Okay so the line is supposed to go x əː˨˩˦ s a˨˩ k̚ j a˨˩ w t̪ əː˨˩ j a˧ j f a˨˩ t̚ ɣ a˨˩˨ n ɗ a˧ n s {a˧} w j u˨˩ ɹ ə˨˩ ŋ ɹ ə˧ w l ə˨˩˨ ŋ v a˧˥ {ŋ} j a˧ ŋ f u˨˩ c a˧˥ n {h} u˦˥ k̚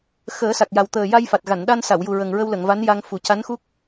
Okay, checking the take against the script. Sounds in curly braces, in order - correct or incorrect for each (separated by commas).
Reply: incorrect, incorrect, incorrect